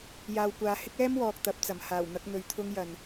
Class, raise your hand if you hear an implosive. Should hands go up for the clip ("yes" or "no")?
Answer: no